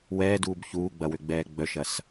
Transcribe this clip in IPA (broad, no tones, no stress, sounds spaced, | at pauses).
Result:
w ɛː d uː b ç uː ɡ͡b ɐ w ø ɡ͡b ɛː ɡ͡b œ ʃ ɐ s